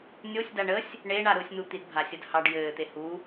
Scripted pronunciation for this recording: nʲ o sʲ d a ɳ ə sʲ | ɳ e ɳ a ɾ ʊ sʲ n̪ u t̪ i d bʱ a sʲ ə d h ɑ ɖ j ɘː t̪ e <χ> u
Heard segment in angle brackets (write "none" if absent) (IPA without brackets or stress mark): h